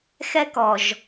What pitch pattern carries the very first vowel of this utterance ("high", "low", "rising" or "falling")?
high